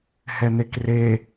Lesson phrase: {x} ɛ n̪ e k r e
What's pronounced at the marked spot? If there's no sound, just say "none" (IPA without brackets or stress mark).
h